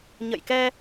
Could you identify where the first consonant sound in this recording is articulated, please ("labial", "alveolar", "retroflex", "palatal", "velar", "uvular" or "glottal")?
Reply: palatal